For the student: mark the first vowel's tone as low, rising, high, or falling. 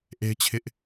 high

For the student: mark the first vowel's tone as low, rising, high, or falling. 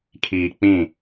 low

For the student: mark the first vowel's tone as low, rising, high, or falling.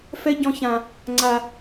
high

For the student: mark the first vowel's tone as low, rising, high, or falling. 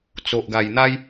low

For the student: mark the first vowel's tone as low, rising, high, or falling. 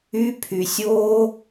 high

